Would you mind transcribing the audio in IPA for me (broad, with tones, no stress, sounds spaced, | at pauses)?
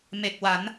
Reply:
m e˨˩ k̚ w a˩˦ n